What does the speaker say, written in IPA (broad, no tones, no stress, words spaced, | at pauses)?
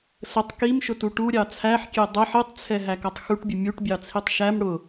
sətˤ kimʃʊtu ʈuɾʲɑ t͡sʰæħkʲɛ dˤɛħ itˤt͡sʰɛɦækʌtˤ xuʈbʲʊ mʲuʈbʲɑt͡sʰitˤ ʃæm ɽʊ